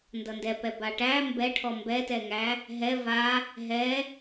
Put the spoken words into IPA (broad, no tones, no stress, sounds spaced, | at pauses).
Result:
n d ʌ n d ɛ p ɛ b a ʈ æ m b ɛ ʈʰ ɔ m b ɛ t ɛ ŋ æ | ɦ ɛ v a | ɦ ɛ